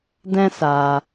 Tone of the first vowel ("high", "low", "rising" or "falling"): high